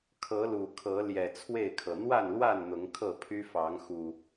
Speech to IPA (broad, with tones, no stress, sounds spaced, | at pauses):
kʰ ɤ˨˦ l u˨˩ kʰ ɤ˨˦ l j ɛ˨˩ t͡sʰ w e˥˨ ɪ̯ kʰ ɤ˩ n̪ w a˥˨ n l w a˥˨ n n̪ ʊ˨˦ ŋ kʰ ɤ˥˨ pʰ y˦ f ɑ˨˦ ŋ x u˨˩